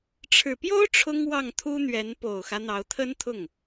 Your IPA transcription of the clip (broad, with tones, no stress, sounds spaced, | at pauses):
ʈ͡ʂʰ ɻ̩˨˩ p j o˥ ʊ̯ ʈ͡ʂʰ ʊ˥ ŋ w ɑ˥˩ ŋ t̪ʰ u˥ n̪ ɥ ɛ˧˥ n p o˨˩ ʊ̯ x ä˦ n̪ ɑ˧˥ ʊ̯ t̪ʰ ə˥ n t̪ʰ ʊ˥˩ ŋ